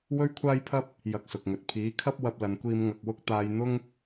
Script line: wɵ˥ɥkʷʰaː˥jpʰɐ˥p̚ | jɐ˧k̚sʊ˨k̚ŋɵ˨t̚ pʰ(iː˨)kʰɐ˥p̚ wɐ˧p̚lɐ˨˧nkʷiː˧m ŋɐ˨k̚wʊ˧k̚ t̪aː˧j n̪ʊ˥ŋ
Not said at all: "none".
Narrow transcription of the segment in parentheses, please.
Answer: iː˨˥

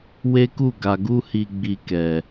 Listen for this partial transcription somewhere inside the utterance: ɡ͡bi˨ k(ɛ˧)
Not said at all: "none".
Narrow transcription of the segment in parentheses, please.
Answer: ɛ˨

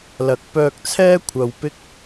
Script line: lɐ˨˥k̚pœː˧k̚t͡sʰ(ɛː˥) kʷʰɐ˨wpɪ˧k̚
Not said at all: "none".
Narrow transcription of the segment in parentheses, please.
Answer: ɛː˥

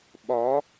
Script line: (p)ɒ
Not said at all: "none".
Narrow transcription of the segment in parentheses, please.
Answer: ɓ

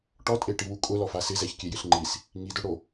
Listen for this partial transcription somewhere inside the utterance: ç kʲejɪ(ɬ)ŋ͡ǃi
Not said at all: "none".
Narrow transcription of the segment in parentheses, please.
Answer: ɬ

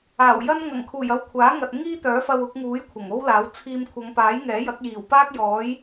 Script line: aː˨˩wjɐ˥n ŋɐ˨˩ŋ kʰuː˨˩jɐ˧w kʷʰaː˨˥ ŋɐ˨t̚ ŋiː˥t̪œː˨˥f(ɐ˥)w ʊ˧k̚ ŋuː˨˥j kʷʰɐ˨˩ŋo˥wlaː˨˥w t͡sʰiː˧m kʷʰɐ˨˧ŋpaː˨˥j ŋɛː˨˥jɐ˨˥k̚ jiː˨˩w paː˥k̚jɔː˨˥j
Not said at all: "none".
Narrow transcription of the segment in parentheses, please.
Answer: ɐ˧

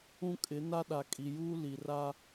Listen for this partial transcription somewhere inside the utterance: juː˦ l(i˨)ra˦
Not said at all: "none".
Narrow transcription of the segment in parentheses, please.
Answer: i˨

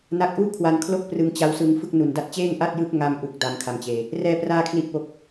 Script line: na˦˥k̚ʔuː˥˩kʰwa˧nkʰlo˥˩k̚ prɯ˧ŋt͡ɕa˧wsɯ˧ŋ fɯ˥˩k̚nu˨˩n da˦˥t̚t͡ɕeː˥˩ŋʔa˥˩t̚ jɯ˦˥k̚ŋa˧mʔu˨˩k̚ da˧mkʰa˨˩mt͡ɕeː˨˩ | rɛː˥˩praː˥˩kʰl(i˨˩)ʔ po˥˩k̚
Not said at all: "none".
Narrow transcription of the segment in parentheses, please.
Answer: i˥˩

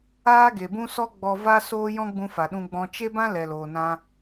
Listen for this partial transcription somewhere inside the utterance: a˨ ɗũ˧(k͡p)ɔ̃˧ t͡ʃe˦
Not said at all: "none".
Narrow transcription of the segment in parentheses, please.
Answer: ɡ͡b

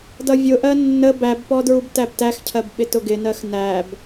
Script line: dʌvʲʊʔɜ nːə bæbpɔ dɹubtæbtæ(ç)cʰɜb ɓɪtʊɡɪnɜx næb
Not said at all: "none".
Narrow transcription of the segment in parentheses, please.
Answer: x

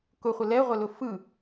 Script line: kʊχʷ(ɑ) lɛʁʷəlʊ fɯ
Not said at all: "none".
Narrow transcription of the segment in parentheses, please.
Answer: ə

